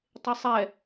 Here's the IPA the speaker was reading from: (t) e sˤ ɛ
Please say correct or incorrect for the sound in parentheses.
incorrect